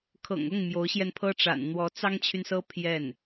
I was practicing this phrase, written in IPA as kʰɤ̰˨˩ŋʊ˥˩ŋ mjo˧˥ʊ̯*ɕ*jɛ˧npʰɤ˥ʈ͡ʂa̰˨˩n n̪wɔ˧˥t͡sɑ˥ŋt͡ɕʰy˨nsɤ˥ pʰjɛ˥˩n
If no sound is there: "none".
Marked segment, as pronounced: ɕ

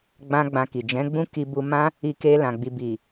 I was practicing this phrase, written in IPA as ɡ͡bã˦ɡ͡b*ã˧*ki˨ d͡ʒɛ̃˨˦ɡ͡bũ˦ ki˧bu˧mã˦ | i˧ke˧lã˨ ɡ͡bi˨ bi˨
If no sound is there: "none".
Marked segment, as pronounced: ã˧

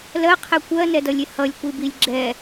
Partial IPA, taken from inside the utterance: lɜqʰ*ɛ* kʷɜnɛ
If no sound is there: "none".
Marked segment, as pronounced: ɛ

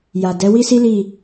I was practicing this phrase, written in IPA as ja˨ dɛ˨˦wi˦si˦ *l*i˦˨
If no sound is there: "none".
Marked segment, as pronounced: l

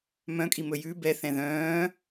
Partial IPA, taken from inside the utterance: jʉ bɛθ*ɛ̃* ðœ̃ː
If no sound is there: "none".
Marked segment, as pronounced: ɛ̃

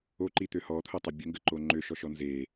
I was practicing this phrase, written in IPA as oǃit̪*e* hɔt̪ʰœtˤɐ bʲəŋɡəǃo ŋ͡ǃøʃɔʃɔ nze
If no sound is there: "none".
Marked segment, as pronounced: ø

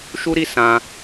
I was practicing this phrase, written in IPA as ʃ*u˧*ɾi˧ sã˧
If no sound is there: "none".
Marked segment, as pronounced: u˧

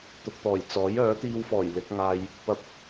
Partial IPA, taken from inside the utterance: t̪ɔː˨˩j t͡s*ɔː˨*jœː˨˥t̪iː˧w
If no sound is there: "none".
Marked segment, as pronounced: ɔː˨˥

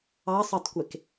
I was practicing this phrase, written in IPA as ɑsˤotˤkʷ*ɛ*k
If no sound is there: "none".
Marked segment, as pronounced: e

